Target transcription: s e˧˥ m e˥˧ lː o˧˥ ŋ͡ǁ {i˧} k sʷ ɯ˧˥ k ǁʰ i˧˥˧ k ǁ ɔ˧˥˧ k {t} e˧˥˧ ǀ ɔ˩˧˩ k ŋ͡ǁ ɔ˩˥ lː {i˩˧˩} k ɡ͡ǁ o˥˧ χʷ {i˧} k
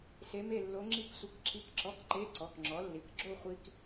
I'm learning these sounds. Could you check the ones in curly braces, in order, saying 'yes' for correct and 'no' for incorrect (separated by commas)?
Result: no, no, yes, yes